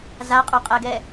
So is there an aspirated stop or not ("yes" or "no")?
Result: no